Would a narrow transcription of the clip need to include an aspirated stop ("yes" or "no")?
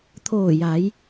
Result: yes